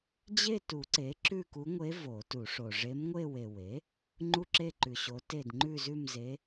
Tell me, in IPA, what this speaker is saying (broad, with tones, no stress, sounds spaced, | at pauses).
d͡ʑ e˥˧ t u˨˩˦ ǀ e˩˥ ǁ ʉ˥˧ k u˧˥ ŋʷ e˧˥ v o˨˩˦ t u˨˩˦ ʂ o˨ ʐ e˧˥ m ŋʷ e˥˧ w e˨ w e˩˥ | ŋ͡ǃ u˥˧ ǁ e˥˧ ǃ ʉ˨ ɕ o˧˥ t e˥˧ d ŋ͡ǃ ʉ˥˧ z ʉ˥˧ m z e˧˥